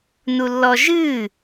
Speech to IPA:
nulːɔʒɨː

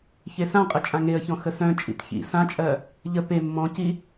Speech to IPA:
çesãqʼə t͡ʃʼãŋeə̯çɔ̃ xəsœ̃t͡ʃʼḭt çḭ sãt͡ʃʼɜ | ʎə pe mːɔ̃ci

